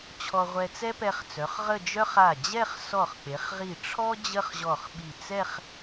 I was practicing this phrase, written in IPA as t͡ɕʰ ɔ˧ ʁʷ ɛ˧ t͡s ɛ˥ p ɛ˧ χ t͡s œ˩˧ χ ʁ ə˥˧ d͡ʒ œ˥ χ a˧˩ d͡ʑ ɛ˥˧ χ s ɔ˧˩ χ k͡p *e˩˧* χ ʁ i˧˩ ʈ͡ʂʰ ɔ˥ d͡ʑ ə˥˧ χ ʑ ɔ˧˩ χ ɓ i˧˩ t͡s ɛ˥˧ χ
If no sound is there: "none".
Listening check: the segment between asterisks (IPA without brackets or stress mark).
e˩˧